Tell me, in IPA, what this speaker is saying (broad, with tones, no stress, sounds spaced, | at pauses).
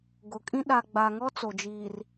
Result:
ɡ ʊ˨ kʼ ĩ˦ ɗ a˨ ɡ͡b a˨ ŋ ɔ˦ t͡s o˨ d͡ʒ iː˨ r